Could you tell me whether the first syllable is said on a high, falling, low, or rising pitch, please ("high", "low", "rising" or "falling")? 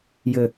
low